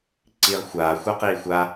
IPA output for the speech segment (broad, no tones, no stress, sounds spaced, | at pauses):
ǀ iː ʁ xʷ aː xʷ a q iː xʷ a